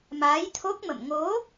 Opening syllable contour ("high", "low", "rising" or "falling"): rising